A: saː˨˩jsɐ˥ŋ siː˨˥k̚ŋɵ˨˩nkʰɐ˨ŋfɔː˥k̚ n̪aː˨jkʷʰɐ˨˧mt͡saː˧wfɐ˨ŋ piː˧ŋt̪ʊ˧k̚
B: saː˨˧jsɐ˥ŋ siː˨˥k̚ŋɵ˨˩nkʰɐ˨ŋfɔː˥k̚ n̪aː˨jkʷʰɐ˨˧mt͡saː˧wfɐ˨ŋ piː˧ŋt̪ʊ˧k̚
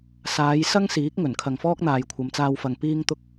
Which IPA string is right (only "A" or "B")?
B